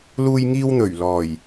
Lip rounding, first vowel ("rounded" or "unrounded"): rounded